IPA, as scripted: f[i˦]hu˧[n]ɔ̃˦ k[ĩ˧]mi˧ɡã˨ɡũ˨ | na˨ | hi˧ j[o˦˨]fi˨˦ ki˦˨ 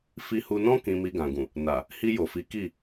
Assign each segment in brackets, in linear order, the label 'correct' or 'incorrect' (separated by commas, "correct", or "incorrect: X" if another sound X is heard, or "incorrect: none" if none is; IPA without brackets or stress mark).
incorrect: i˧, correct, correct, incorrect: o˨